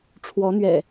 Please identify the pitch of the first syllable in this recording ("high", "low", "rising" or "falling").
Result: rising